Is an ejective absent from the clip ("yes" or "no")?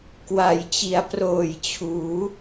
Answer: yes